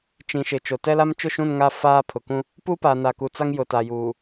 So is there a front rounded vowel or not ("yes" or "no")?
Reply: no